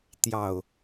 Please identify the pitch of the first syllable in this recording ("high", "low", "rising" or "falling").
low